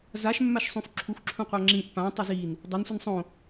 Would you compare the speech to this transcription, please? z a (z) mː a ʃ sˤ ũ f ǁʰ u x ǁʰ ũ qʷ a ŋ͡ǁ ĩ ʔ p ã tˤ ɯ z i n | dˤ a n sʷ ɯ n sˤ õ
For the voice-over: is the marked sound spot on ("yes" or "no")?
no